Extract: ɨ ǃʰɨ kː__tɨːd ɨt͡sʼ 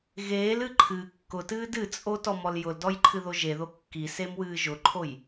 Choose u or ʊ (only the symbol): ʊ